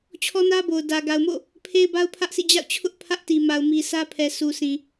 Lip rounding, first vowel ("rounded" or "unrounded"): rounded